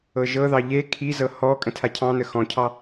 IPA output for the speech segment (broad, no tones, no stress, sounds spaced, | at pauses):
ɤ ʒ ɤ ð ɑ ʎ e kʰ i z ɤ h ɔ kʼ ə̃ tʰ a cʰ ɑ̃ n ə x ɔ̃ cʰ ɑ